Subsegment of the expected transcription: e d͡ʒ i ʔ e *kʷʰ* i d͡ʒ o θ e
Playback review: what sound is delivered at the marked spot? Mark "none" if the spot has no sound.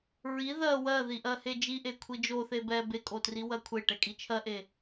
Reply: kʷʰ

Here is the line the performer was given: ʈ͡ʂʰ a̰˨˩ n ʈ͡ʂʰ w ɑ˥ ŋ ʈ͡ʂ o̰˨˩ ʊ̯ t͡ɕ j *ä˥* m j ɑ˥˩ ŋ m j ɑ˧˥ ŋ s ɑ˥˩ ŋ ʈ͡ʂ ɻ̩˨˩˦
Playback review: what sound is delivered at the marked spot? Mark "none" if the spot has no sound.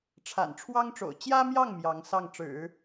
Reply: ä˥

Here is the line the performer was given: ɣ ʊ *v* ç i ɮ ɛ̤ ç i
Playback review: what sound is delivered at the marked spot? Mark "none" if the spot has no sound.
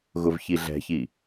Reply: v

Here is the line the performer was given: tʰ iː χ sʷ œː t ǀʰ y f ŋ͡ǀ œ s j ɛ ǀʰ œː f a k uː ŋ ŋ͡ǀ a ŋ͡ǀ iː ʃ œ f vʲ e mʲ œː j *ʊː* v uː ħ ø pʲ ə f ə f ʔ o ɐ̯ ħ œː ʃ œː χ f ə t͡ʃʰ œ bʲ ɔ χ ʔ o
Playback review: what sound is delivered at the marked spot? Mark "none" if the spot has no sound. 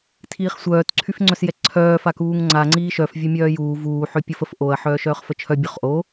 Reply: uː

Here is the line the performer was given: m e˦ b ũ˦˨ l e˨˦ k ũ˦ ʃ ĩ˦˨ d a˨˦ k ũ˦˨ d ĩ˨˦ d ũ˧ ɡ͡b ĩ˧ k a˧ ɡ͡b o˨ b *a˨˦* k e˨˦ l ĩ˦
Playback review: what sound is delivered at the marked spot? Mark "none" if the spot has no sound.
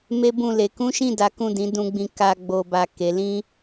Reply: a˨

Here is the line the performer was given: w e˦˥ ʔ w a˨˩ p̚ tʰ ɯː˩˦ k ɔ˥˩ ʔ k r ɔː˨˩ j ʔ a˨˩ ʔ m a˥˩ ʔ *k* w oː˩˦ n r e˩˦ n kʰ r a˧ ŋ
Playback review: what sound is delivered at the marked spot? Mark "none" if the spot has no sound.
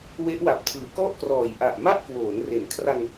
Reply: k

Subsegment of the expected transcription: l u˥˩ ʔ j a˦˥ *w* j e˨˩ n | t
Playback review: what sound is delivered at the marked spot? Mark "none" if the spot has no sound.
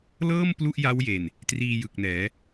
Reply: w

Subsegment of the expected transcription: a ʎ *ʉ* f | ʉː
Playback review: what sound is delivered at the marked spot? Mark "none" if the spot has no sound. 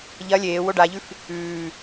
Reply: ʉ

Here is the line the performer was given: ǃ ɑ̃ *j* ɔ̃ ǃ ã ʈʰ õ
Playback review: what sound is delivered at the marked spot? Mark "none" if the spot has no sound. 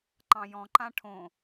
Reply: j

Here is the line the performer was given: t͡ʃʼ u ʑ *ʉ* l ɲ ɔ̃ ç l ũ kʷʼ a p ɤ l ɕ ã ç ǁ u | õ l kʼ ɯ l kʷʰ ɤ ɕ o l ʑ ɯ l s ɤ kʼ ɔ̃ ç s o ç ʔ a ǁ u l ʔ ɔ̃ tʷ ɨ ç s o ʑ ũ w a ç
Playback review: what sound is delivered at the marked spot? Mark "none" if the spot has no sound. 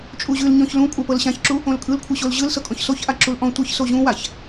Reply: ʉ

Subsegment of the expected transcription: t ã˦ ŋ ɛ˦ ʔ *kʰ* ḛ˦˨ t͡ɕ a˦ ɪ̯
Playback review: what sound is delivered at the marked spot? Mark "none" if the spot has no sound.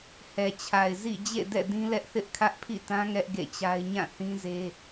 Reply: ɡ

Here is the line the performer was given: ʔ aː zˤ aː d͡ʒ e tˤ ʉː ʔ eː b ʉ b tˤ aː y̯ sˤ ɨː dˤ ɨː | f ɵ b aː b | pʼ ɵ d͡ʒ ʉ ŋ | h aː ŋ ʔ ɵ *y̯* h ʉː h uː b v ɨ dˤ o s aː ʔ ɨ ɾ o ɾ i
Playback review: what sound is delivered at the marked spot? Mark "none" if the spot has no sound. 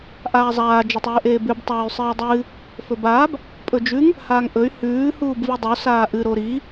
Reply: y̯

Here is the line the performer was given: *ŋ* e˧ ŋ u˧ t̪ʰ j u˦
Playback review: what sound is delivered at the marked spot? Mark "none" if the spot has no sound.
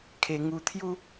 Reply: kʰ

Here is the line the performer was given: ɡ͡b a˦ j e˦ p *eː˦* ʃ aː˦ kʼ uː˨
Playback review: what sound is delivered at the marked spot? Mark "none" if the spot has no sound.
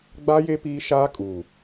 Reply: iː˦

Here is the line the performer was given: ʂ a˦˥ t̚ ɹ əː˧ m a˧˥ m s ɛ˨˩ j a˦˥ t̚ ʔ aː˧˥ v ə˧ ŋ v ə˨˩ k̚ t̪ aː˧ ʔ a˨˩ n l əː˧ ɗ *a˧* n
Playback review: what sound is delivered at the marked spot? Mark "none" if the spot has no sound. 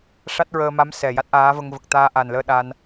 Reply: a˧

